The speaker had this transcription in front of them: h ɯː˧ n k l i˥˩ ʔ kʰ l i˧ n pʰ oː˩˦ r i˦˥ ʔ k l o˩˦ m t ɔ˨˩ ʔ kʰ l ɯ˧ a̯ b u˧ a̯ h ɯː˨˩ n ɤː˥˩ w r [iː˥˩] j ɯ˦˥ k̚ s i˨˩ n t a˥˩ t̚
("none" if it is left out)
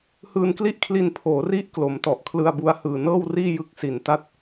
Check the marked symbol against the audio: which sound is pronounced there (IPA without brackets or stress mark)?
iː˥˩